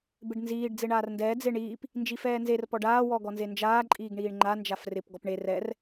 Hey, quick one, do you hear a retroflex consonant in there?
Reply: yes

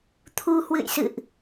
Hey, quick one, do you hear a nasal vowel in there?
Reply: no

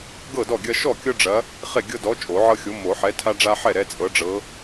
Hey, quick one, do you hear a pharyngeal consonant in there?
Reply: yes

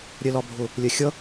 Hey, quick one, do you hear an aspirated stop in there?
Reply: no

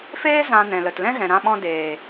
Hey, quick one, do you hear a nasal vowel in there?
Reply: yes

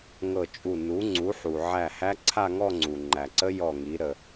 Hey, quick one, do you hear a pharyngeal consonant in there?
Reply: yes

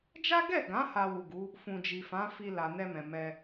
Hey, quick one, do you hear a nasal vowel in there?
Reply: yes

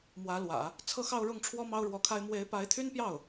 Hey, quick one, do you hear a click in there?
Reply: no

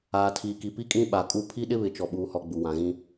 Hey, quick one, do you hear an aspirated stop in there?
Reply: yes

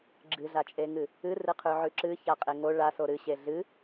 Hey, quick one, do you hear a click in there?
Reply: yes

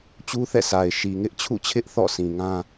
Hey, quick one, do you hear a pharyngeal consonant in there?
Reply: no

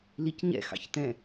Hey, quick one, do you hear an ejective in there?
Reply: no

